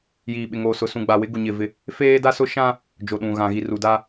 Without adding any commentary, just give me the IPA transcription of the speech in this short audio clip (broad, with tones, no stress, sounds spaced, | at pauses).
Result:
j iː˨ ɓ ɪ˨ ŋ oː˨ s ʊ˨ s ũ˨ ɡ͡b a˨ w ɪ˨˦ ɡ u˨ ɲ ɪ˦˨ v ɪ˦ | f eː˦ d a˦ s ʊ˦ ʃ ã˦ | d͡ʒ o˨ ɗ ũ˨ ɣ ã˨ ɣ i˨ r u˨ d a˦